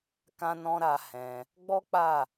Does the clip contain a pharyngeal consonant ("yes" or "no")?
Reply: no